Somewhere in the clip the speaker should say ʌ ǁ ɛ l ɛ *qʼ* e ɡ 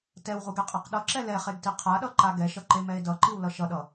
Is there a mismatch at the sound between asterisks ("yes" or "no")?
yes